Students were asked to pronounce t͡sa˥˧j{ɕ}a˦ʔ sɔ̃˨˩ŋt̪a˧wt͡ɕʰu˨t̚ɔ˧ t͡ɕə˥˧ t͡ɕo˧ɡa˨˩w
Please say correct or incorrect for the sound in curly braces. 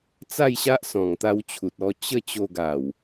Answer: correct